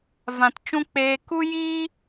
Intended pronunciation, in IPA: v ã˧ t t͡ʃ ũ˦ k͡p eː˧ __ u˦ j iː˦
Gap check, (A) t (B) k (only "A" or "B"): B